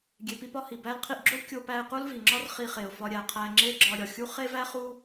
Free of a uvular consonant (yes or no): no